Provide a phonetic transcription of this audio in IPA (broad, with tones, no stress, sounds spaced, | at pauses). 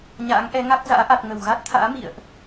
ɲ a̰ː˧˥ ŋ ʔ ɛ˨˦ ŋ a˦˥ k̚ z a̰ː˧˥ ʔ a˨˩ t̚ ŋ ə˧˩ w ɣ a˦˥ t̚ t̪ʰ a̰ː˧˥ m ḭ˧˨ ə̯ ʔ